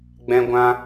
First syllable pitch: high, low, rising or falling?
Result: high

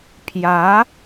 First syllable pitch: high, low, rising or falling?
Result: rising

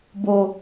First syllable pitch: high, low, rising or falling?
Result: low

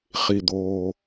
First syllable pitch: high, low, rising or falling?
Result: low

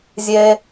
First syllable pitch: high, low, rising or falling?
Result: low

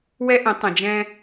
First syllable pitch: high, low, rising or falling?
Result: high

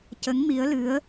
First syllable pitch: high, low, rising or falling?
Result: rising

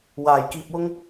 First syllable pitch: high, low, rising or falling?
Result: low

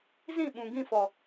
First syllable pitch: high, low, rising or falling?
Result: falling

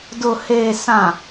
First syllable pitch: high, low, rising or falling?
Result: low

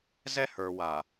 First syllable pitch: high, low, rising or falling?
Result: high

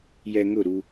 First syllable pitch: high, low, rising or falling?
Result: low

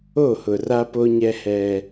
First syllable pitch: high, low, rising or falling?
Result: falling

